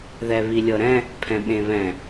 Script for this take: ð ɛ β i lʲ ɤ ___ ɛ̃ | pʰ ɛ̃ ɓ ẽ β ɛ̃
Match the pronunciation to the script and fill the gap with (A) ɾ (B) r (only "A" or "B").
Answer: A